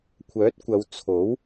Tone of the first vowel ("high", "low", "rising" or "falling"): rising